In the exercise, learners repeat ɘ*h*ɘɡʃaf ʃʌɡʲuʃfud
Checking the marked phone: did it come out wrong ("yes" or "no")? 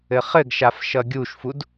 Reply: yes